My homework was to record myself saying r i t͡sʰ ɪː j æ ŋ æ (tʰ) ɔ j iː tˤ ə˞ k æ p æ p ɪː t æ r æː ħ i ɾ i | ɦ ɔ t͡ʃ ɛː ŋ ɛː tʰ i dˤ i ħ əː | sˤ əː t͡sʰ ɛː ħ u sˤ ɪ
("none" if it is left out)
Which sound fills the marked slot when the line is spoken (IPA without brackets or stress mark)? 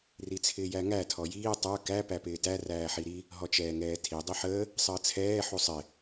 tʰ